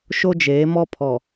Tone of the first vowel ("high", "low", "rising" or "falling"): high